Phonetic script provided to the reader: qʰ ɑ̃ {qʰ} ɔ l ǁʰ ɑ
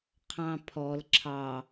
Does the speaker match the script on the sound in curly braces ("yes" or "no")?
no